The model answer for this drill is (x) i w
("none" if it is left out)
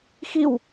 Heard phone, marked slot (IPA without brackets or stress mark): x